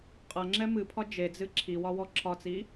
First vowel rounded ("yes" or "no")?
no